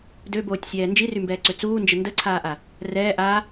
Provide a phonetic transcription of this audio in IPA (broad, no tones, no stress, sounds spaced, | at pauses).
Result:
d ø b oː tʲ sʲ ɛː n d͡ʒ i r y m b ɛː ǀ ø t͡s uː n d͡ʒ ə n d ə ǀʰ aː ʔ a | r ɛː ʔ a